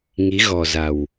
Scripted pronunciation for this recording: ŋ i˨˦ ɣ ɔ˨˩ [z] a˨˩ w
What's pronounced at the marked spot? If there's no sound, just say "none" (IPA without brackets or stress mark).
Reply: z